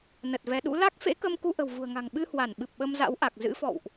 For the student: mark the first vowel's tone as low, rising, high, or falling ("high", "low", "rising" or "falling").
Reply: low